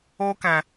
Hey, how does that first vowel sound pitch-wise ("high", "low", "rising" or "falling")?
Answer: high